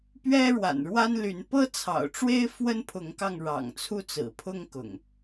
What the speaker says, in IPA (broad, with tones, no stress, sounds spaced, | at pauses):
p ɥ ɛ˦ ɻ w a̰˨˩ n ɻ w a˦ n l y˨˦ n p ɤ˦ t͡sʰ ɑ̰˨˩ ʊ̯ ʈ͡ʂ w e˦ ɪ̯ f w ə˦ n pʰ ʊ˨˦ ŋ k ɑ˧ ŋ ɻ ɑ̰˨˩ ŋ t͡sʰ u˦ t͡s ɹ̩˨˩ pʰ ʊ˦ ŋ k ʊ̰˨˩ ŋ